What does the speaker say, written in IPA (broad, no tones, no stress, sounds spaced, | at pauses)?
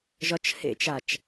ʒ ɒ t͡ʃ h ḛ t͡ʃ a t͡ʃ